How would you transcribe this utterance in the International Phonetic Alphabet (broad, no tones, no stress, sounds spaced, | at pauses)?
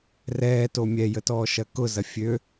r ɛː t o mʲ ɛ j ə t ɔː ʃ ɐ k ʊ z ɐ fʲ ø